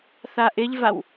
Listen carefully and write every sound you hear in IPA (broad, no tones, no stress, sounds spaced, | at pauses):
θ a ʔ ɪ ʎ v a w